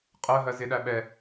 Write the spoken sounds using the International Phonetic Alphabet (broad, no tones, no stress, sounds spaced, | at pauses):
qʼ ɜ ɦ ɜ z ɪ ɗ æ ɓ ɛ